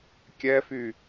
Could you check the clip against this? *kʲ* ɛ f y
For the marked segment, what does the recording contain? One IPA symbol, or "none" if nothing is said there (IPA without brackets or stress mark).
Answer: kʲ